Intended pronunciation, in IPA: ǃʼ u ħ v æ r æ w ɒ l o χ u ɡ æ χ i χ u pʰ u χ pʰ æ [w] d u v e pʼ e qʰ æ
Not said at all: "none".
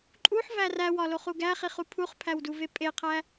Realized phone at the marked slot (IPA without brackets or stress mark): w